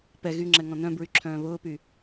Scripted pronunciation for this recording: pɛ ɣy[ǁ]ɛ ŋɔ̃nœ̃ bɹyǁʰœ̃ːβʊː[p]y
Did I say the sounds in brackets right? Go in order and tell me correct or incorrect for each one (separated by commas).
incorrect, correct